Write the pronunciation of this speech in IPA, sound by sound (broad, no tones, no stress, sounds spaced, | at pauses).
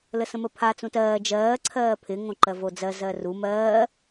l ə s ə̃ m ə pʰ a t͡s ũ t ɜː d͡ʒ ɜː ǀʰ ɜː pʰ ɪ ŋ õ ǃ ɜ v o d͡z ɜ z ɜ r u m ɜː